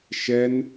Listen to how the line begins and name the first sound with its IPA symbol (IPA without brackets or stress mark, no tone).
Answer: ʃ